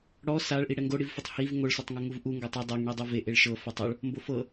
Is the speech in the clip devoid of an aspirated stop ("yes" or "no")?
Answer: yes